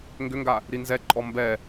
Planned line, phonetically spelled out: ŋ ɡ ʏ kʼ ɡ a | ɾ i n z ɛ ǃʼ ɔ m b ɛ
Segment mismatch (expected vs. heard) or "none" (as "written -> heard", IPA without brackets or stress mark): kʼ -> ŋ